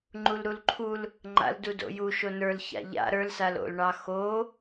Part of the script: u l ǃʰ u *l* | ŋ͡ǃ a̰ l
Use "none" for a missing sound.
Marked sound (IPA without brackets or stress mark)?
l